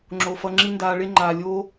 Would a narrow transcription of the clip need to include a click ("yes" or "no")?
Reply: yes